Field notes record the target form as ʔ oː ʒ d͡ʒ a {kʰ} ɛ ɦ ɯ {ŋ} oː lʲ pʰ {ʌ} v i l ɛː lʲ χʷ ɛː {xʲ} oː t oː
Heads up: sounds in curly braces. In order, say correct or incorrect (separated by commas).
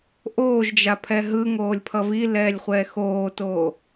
incorrect, correct, correct, incorrect